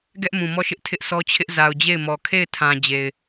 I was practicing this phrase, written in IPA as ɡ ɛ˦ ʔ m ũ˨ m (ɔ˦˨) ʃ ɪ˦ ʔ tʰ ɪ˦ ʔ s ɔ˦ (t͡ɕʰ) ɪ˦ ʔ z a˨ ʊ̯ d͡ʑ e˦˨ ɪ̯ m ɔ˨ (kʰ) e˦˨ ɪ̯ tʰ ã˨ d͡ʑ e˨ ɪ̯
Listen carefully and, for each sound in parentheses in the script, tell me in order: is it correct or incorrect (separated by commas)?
correct, correct, correct